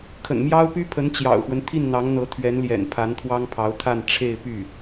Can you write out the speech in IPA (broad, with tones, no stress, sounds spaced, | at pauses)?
kʰ ə̰˨˩ n m j ɑ˥ ʊ̯ p y˥ pʰ ə˧˥ n t͡ɕ j ɑ̰˨˩ ʊ̯ x w ə˦ n t̪ʰ i˥˩ n n̪ ɑ˧˥ ŋ n̪ ɤ˧˥ t̪ʰ ɥ ɛ˧˥ n l j ɛ̰˨˩ n pʰ a˧˥ n t̪ʰ w ɑ˥ ŋ pʰ ɑ˧˥ ʊ̯ t̪ʰ a˥˧ n ʈ͡ʂʰ e˥˧ ɪ̯ p y˥˩